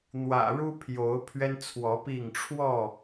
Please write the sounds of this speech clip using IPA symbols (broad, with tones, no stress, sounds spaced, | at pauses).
n̪ w ä̰˨˩ ɻ u˦ pʰ j o˨˦ ʊ̯ pʰ ɥ ɛ˦ n t͡sʰ w ɔ˨˦ p i˥˨ ŋ ʈ͡ʂʰ w ɔ˥˨